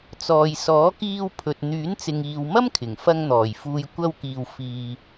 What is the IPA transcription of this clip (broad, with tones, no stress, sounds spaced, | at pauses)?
t͡s ɔː˨ j s ɔː˨˥ k iː˧ w pʰ ɵ˨ t̚ n̪ yː˨˥ n t͡s ɪ˨ ŋ iː˨ w m ɐ˥ m kʰ ɪ˨˩ ŋ f ɐ˧ ŋ n̪ ɔː˨˩ j f uː˨ j kʷ ɐ˧ w k iː˨ w f iː˨